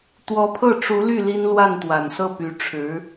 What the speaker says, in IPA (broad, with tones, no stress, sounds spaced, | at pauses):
t̪ w ɔ˧˥ pʰ ɤ˥˩ ʈ͡ʂ u˧˥ l y˥˩ l i˥ n l w a˥˩ n t̪ w a˨˩ n s ɤ˥˩ p y˧˥ ʈ͡ʂʰ ɻ̩˧˥